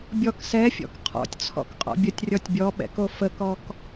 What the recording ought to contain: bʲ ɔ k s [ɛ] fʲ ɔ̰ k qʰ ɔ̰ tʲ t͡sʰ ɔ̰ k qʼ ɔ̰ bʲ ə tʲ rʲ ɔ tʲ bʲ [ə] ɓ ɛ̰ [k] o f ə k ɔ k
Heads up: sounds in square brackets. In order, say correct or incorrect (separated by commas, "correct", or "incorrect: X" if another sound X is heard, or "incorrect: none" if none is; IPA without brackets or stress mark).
correct, incorrect: ɔ, correct